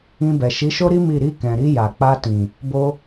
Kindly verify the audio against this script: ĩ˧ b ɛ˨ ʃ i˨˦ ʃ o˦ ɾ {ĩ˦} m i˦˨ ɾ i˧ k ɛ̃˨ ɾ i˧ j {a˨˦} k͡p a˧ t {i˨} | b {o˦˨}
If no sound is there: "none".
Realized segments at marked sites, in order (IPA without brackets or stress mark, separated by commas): i˦, a˨, ĩ˨, o˧